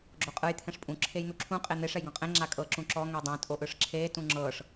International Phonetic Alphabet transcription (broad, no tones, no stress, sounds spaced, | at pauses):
ɡ͡ǁ o qʼ ɯ j t̪ʰ ɛ̃ ʂ pʼ ũ ǁʰ e j n̪ u ǁʰ ũ qʼ e n̪ e ʂ ɛ j ɡ ɔ̃ qʼ ẽ ŋ͡ǁ a kʼ ɤ ǁ ũ ǁ ɔ ŋ ɛ dˤ ẽ tʼ o ʔ ɯ ʂ ǁʰ eː t ũ ŋ͡ǁ ɤː ʂ